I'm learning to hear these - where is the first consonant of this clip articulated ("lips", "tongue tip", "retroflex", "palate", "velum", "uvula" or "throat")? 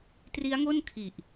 tongue tip